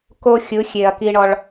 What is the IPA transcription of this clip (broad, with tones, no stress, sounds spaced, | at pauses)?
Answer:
k o˧ xʲ ɯ˨˦ xʲ e˨ ɐ̯ k i˧ ɳ ɔ˧ ɭ